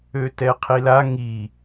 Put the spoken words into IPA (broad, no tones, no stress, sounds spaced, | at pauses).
ø t ɛ qʰ i l a ŋ i